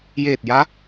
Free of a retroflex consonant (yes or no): yes